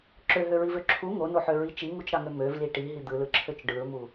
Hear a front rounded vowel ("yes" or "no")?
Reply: yes